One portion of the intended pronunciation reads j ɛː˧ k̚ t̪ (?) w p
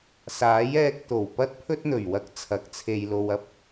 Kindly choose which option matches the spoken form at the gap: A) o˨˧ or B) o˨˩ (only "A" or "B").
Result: B